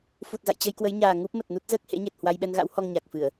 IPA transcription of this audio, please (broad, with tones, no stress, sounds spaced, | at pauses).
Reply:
f u˨˩ t̚ z a̰˧˨ j t͡ɕ ə˧ j k w ə˨˦ j ɲ aː˨˩ ŋ u˦˥ p̚ m ə˨˩ t̚ n u˦˥ t̚ z əː˦˥ k̚ h ḛ˧˥ ɲ e˨˩ t̚ h w a˧ j ɓ ɛ˧ n ɣ a̰˧˥ w h ɔ˧ ŋ ɲ a˨˩ k̚ f ɨ˧˩˨ ə̯